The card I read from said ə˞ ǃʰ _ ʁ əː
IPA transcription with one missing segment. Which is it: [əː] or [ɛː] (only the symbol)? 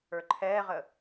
ɛː